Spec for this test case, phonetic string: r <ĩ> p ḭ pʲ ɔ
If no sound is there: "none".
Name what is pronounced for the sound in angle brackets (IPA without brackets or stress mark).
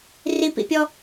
i